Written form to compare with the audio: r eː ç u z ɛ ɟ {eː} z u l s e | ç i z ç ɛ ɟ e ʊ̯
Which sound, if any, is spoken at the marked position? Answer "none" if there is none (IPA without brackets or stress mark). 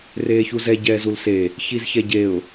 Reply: ɛː